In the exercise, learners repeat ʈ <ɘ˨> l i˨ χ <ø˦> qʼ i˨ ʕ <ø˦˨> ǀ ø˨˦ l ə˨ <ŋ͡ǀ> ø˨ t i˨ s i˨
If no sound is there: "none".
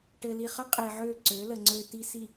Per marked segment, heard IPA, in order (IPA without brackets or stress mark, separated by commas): ɘ˨, ə˦, ø˦˨, ŋ͡ǀ